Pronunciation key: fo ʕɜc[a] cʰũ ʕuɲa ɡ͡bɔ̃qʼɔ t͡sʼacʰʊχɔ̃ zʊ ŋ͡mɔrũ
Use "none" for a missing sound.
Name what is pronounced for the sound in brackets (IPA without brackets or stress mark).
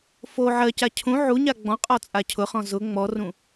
a